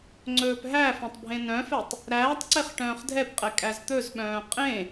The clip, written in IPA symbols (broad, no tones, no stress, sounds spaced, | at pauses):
ŋ͡ǀ ɵː p ɦ æ f œ̃ tˤ bʱ ẽ n œ̃ f ɛ tˤ | ɾ æː tˤ ǀ e χ ʈ œ̃ː χ dʱ ɛ p qʼ ɛ kʼ æ z t̪ ɵ z ɓ œ̃ː qʼ ẽ